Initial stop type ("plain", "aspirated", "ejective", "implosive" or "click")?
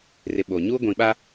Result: implosive